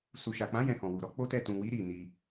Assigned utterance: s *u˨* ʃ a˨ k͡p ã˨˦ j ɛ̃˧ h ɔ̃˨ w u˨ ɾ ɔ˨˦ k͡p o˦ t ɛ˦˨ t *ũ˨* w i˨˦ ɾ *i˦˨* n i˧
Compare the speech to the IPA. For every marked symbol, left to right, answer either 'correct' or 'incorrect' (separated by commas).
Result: correct, correct, correct